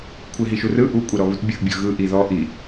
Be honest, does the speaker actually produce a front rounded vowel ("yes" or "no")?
no